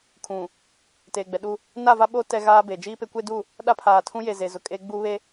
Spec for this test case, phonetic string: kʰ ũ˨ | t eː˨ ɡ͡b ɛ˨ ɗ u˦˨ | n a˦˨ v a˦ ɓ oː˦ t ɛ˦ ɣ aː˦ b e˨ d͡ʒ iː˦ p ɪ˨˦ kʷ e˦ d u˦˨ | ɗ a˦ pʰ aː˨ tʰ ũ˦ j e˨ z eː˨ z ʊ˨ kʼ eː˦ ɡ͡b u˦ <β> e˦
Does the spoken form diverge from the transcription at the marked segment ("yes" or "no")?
no